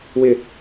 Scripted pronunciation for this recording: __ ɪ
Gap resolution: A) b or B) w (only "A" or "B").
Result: B